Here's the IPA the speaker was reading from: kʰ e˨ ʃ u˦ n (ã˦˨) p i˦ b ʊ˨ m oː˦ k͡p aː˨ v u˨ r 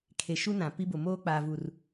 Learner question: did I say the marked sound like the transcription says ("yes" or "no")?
no